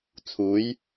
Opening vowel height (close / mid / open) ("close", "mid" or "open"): close